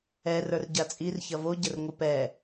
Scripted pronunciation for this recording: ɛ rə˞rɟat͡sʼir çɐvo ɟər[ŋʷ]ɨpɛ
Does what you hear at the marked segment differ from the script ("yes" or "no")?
no